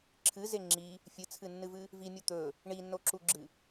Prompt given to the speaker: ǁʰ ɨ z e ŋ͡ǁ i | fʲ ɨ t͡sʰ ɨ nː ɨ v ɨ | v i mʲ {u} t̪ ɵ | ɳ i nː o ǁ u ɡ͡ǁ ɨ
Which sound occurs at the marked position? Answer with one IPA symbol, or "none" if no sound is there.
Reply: u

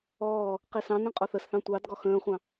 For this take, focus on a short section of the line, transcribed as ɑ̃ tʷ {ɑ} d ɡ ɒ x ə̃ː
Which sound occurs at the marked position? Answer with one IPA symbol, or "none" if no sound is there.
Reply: ɑ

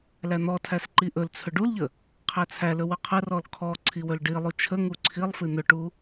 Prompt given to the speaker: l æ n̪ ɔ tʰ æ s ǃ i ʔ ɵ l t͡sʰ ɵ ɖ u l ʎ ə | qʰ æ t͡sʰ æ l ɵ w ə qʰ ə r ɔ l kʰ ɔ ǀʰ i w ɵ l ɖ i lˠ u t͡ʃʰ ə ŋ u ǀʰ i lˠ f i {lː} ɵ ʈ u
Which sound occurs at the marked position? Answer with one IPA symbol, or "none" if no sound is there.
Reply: n̪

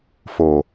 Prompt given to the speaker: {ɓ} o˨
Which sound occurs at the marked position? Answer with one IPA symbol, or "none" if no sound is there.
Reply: f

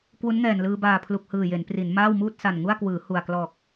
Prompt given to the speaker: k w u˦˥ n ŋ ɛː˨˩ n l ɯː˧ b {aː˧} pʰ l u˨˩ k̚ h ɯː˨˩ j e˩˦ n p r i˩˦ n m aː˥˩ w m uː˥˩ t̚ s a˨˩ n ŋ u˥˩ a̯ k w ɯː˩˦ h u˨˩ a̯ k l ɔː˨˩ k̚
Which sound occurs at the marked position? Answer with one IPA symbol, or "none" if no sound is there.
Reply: aː˨˩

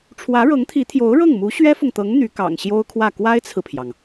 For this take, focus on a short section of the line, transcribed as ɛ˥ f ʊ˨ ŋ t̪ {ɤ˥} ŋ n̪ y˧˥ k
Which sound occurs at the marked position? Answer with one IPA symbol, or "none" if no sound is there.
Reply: ɤ˧˥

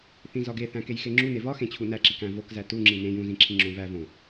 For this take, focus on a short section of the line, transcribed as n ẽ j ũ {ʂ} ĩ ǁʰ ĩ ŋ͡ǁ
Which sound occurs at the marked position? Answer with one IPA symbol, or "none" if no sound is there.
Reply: z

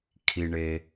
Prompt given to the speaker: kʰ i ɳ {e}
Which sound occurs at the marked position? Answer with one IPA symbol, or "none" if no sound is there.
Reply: e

